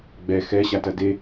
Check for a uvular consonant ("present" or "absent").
absent